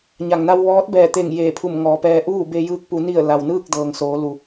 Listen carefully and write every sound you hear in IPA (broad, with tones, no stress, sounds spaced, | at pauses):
ɲ a˩ ŋ n a˧ w ʋ ɔː˧˥ t̚ b ɛː˧˩ t̪ e˧˩ ŋ j eː˧˩ pʰ u˧˩ m ŋ ɔː˩˧ p ɛː˧ ʔ uː˥˨ b e˧ j ɯː˧ k̚ p u˩˧ n i˧˩ ə̯ l a˩ w n ɯː˥˨ k̚ d ɤː˩ ŋ s oː˩˧ l u˩